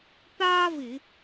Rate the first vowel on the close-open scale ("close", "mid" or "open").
open